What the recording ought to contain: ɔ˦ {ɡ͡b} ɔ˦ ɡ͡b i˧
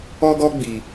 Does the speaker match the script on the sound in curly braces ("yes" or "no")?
no